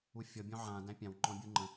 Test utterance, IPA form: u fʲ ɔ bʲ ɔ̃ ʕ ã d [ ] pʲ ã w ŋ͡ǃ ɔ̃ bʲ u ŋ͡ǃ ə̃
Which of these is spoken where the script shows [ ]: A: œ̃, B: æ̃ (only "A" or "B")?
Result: B